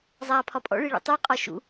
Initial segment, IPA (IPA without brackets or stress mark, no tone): zˤ